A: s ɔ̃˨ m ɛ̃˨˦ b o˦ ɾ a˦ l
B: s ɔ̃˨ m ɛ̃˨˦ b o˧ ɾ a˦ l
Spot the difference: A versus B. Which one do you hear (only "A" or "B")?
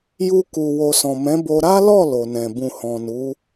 B